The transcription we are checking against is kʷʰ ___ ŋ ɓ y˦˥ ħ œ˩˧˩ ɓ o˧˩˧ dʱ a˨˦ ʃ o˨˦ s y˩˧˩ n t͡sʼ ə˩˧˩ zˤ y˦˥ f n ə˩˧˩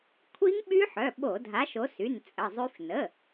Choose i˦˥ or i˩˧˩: i˦˥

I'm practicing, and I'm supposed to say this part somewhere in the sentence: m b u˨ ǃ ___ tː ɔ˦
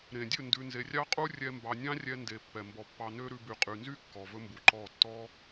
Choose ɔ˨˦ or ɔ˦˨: ɔ˦˨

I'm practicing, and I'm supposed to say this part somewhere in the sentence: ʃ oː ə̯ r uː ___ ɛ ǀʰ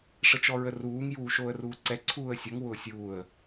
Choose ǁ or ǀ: ǀ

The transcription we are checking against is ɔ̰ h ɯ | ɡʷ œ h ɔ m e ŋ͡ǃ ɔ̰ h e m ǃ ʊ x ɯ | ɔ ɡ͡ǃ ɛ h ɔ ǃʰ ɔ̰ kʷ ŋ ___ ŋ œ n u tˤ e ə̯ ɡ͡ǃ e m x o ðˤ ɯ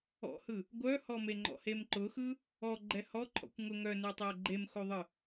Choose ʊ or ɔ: ʊ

